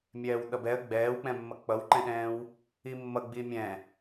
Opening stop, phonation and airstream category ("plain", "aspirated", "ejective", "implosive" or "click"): implosive